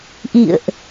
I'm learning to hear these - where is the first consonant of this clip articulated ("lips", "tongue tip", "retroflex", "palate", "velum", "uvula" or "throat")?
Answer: throat